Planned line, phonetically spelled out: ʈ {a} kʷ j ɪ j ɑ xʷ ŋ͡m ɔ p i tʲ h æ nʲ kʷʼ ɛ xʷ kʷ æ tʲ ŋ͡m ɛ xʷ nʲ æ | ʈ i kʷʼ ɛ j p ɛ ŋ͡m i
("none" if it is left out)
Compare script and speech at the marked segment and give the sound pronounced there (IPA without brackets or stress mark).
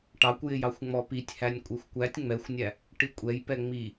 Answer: ɑ